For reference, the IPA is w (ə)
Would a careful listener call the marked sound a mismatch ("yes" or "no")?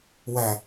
yes